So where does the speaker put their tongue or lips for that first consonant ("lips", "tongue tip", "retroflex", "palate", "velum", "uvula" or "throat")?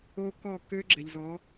velum